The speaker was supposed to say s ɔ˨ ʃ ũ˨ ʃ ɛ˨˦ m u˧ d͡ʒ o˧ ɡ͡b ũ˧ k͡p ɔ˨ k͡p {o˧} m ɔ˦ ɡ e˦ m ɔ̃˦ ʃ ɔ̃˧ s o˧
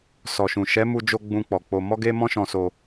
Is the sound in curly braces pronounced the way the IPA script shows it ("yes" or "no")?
yes